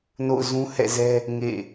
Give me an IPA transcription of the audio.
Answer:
n o̰˦˨ ʊ̯ z ũ˦ h ɛ̰˦˨ z ɛ˦ | ŋ ḛ˦˨

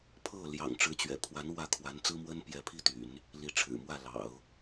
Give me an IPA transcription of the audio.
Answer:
pʰ ɤ˥˩ l j ɑ̰˨˩ ŋ ʈ͡ʂ ɻ̩˧˥ t͡ɕ ɥ ɛ̰˨˩ pʰ w a˧˥ n w ä˥˩ kʰ w a˧˥ n t͡s ɹ̩˥ m w ə˥ n p j ɛ˧˥ pʰ i˥˩ t̪ y̰˨˩˦ n | l i˧˥ ʈ͡ʂʰ ɻ̩˨˩ m w ä˥˩ l ɑ̰˨˩˦ ʊ̯

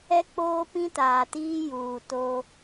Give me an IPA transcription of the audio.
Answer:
ɛ˦ k͡p oː˦ p ĩ˦ t aː˨ t iː˦ j uː˨ t o˦

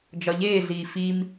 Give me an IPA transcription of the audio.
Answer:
d͡ʒ ɒ ʎ eː ɮ iː f i m

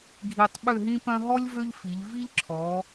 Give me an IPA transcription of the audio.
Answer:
ɡʱ i˧ tˤ ɓ ø˥˧ ɦ ĩ˥ p œ̃˥ ɦ ɔ˥ lʲ v ø˥ ʎ f i˩˧ ʎ v i˥ ʎ ǁʰ ɔ˩˧

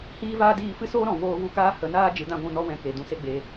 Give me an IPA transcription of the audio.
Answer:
h iː˦ v aː˦ d iː˦˨ f ɨ˦ s oː˦ ɾ ɔ̃˨ v oː˦ v u˦ k aː˦ h ə˨˦ n aː˦ d͡ʒ ɨ˨˦ d ã˦ ɡʷ ũ˧ n ɔ˦ w ɛ̃˧ k e˨ d ũ˧ s e˦ ɡ͡b e˧

